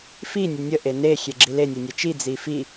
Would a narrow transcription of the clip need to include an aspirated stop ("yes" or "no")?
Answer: no